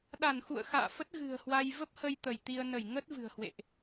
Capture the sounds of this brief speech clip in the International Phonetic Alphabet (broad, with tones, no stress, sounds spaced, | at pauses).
ɗ a˧˩ n x ṵ˧˨ ə̯ x a̰ː˧˨ f ə˦˥ t̚ ɣ ɨ̤˨˩ ə̯ h w a˧ j v ə˦˥ p̚ h ə˧ j t̪ ə˧˩ j t̪ i˧ ə̯ n ə˧˩ j ŋ ə˦˥ t̚ v ɨ̤˨˩ ə̯ h w ḛ˧˨ ʔ